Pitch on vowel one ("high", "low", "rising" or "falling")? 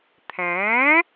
rising